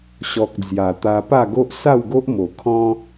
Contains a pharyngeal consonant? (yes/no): no